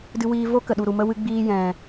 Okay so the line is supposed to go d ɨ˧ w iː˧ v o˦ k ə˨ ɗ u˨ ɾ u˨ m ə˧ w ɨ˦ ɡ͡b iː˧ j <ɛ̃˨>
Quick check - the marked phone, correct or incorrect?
correct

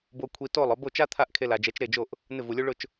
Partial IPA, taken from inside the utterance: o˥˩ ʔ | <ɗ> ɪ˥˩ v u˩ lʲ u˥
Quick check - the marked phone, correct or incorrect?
incorrect: n̪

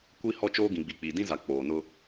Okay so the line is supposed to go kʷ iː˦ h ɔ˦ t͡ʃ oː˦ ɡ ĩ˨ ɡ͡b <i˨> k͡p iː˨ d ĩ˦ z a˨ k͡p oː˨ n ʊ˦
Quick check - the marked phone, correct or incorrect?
correct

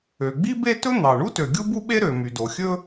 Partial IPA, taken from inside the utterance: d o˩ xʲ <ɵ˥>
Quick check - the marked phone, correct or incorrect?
correct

